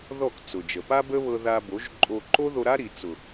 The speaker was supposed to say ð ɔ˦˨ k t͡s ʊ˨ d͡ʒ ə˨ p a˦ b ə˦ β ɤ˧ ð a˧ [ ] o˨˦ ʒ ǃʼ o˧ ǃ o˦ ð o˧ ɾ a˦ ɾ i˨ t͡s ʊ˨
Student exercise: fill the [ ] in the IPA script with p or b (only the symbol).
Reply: b